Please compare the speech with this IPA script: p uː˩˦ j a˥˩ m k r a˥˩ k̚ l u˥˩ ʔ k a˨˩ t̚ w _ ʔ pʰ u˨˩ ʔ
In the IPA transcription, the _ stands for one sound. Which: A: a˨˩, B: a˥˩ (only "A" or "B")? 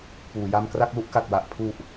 A